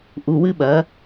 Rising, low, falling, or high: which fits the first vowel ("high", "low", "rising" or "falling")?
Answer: low